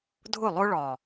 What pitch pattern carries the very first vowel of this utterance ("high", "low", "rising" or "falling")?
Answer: falling